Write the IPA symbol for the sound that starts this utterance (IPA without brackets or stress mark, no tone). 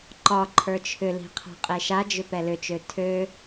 ǃ